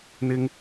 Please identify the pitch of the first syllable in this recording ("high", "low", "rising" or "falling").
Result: high